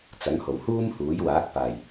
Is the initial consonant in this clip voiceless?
yes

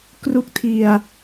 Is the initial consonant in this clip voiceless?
yes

